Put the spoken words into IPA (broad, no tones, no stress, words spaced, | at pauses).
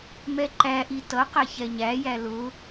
mɛǃæʔi tʌqæ çɛɲæjæ lʊ